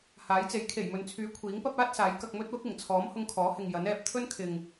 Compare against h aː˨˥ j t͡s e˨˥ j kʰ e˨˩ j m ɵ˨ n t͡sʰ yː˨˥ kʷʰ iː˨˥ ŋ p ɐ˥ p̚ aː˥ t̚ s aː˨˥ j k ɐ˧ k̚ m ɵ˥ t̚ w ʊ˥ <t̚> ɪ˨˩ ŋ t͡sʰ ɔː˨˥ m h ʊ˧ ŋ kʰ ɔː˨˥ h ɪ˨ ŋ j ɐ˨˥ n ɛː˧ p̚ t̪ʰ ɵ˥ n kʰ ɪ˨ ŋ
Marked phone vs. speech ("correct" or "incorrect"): incorrect